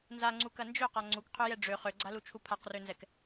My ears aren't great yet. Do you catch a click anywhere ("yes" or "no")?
yes